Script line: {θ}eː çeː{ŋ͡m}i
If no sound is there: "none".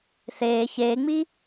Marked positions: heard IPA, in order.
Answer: θ, ŋ͡m

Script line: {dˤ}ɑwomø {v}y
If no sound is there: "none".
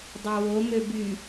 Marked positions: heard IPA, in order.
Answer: dˤ, b

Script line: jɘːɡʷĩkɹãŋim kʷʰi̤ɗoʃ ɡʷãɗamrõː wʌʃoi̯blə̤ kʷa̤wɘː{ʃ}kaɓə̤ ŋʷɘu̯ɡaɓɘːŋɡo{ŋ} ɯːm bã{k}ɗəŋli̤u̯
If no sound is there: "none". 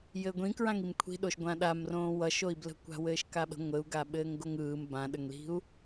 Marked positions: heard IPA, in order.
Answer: ʃ, ŋ, none

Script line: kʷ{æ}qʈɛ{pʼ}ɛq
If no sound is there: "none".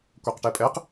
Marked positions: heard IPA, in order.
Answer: ɛ, pʼ

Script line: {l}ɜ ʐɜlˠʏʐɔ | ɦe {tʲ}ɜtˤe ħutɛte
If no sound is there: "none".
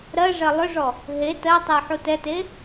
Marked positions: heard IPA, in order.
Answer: ɾ, t

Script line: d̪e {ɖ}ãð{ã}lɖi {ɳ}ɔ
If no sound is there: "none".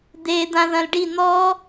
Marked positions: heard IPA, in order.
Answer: d̪, ɐ̃, n̪

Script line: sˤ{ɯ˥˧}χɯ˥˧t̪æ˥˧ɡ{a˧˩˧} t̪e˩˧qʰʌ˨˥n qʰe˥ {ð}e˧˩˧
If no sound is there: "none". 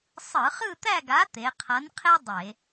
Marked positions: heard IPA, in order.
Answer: ɯ˧˩˧, a˨˥, dˤ

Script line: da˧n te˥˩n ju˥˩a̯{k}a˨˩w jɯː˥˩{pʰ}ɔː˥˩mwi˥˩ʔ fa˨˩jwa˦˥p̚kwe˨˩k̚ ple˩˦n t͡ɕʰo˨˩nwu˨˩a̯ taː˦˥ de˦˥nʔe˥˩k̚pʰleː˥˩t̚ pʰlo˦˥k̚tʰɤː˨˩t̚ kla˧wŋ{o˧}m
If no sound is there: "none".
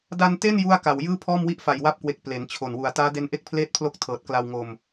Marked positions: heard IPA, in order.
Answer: k, pʰ, o˧

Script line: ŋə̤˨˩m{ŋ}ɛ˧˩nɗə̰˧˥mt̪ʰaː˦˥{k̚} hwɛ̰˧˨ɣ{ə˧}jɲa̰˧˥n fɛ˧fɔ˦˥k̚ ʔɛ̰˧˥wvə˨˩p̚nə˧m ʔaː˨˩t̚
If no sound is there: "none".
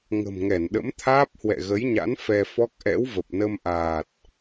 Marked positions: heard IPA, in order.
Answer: ŋ, p̚, ə˨˦

